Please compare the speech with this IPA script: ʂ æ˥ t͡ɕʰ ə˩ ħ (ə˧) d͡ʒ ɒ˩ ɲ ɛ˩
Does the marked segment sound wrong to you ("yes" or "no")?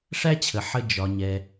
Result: no